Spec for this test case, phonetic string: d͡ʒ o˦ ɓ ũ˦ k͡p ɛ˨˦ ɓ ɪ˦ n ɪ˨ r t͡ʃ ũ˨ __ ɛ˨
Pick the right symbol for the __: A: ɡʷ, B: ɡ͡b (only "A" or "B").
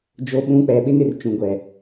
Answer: A